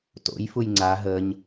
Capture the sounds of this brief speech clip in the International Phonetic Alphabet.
to̰j fujŋ͡ǀa ɦəɲ

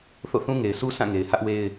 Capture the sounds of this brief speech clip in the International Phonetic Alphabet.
θo̰˦˨θũ˦ ŋe˨ɪ̯sʰu˦ sʰã˦˨ŋe˨ɪ̯ hä˦ʔwe˦ɪ̯

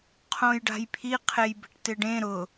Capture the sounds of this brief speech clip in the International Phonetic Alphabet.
qʰõjɖa̤jpʰi qʰejbe̤ʈtɪɖẽ ɾʊ

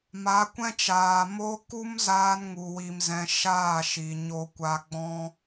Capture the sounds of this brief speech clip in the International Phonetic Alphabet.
ma˨˦kʷɛ̃˦t͡ʃaː˨ mo˦ ku˦mzaː˧nŋu˨ wi˨mzɛ̃˨ ʃaː˦˨ʃi˨ ɲo˧kʷa˧ɡ͡bɔ̃˦

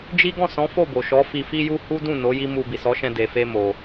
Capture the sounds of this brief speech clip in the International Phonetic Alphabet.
d͡ʒi˦ ɡɔ̃˦˨sɔ̃˨˦ fo˦˨bo˨ʃɔ˨˦ fi˧fi˦ju˦ hu˦dũ˦˨no˨˦ ji˦mu˧ bi˨sɔ˨˦ʃɛ̃˧ de˨fe˧ mo˧

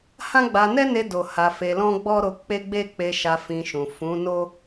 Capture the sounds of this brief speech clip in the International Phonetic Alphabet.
hã˦ɡ͡ba˧ nɛ˦ne˧do˨ ha˧fe˧ lɔ̃˦ɡ͡bɔ˦ɾo˧ k͡pe˦ɡ͡be˦k͡pe˧ʃa˧ fĩ˧ʃũ˨ fũ˨˦ no˦

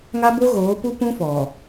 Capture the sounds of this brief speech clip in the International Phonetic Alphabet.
ŋa˦bo˦ɣoː˨˦pu˦ pũ˦fɔ˨

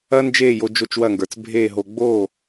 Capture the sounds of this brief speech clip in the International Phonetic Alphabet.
ɐː˥nd͡ʒeː˥˩jo˧ d͡ʒo˥˩t͡ʃwɐ˥˩ŋɡə˞˩t͡s bʱeː˥˩ɦo˧ ɡ͡boː˥˩

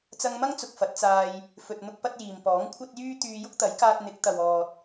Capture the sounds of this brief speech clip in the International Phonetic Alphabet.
t͡sɐ˧ŋmɐ˥ŋt͡sʊ˨k̚ fɐ˨˥t̚t͡saː˧j | fɵ˨t̚n̪ʊ˧k̚ pɐ˥t̚jiː˨m pɔː˨˥ŋkʷʰɐ˥t̚ jyː˥ t̪yː˧ jʊ˥k̚t̪ɐ˨˥jkaː˧t̚ n̪ɪ˨˥k̚t̪ɐ˨wɔː˨t̚

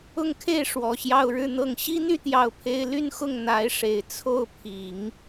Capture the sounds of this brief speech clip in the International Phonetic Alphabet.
ʊ˥˧ŋkʰe˥˩ɪ̯ ʂwɔ˨˩ɕjɑ˥˧ʊ̯ɻɻ̩˥˧n̪ɤ˥˩ŋ ɕi˥n̪y˥˧ t̪jɑ˥˩ʊ̯pʰe˥ɪ̯ ly˥˧nxʊ˥˩ŋ n̪a˧˥ɪ̯ʂe˨˩ɪ̯ t͡sʰo˥˩ʊ̯pʰi˨˩˦ŋ

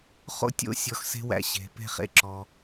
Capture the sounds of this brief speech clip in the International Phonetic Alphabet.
χo̰˦tʲo̰˦ sʲɔ˧xse̤˦ wæ̰˦ɕe̤˧ pe̤˦χḛ˦ǁɔ˧

